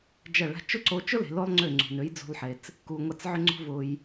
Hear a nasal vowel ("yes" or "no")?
no